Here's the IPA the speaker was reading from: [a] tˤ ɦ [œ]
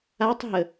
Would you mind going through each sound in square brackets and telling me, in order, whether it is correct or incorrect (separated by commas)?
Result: correct, incorrect